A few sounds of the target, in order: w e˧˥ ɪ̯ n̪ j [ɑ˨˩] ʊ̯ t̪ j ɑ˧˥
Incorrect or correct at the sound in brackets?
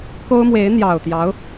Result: correct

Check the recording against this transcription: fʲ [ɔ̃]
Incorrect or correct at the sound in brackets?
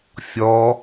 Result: incorrect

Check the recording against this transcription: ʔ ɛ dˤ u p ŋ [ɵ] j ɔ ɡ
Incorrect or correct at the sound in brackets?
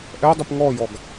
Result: incorrect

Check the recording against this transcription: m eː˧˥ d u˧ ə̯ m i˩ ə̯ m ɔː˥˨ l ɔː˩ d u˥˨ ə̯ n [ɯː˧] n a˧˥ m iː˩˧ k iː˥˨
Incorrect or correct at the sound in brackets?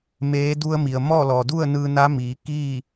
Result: correct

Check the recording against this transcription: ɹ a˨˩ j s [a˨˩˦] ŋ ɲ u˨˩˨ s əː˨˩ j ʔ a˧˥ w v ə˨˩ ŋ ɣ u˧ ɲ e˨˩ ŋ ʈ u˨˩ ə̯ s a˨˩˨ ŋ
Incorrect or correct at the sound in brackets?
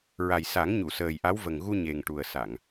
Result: correct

